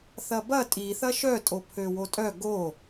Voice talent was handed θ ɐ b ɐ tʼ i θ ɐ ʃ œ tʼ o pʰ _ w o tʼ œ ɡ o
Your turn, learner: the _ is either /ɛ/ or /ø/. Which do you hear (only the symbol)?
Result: ø